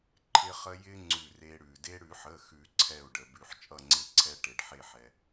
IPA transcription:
ǃʰ ɪ˧ χ ə˧ j ɪ˧ ŋ͡ǀ ʉ˧˩ r e˧ ɽ ʉ˩ d e˧ ɽ ʉ˨˩˦ ħ ə˩˧˩ x ʉ˨˩˦ ǀʰ ɛ˧˩ u̯ ɖ ə˩ b ʉ˩ ħ t͡ʃʼ ʌ˧˩ ŋ͡ǀ ɪ˨˩˦ ǀʰ ɛ˧ ʈ e˩ ɖ ħ e˧˩ ħ ɛ˩

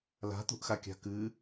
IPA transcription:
l a̤ t̪ ṳ ʔ x a kʲ a̤ k ɨ

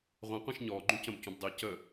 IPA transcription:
ʁʷ ɛ̃ qʷ ĩ ʃ ɲ ɔː ɡ͡ǃ ũ c ə̃ b c ũ b dˤ iː c ə

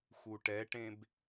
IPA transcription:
x u ʈ ɛ ʈ ẽ b

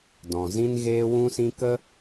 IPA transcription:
d ɔ̃˨ z ĩ˦ n ɣ eː˦ w ũ˦ s ĩ˦ k ə˦

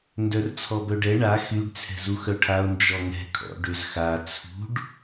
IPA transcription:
n d œ r t͡sʰ ɔ b œ ɖ ɛ ɳ a x y ɖ t͡sʰ ɛ̤ z u x œ ʈʰ a o̯ n d͡ʒ ɔ ŋ ɛ̤ kʰ ɔ̰ ɖ ø z x a t͡sʰ ṳ ɖ

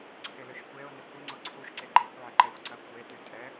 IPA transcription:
ǀʰ ɪ l ʏ ʃ kʷ e ʊ̯ n ɪ kʷ ɪ ŋ͡ǀ ʊ ǀʰ u ʃ ǀ e ɡ͡ǃ e kʷ ʕ ɪ ǃ ɛ xʷ ǀ ɐ kʷ e t y tʼ ɛ

